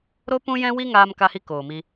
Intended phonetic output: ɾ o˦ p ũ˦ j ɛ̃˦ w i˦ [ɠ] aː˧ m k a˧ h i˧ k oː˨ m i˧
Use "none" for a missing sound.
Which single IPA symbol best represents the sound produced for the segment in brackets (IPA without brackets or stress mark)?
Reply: ŋ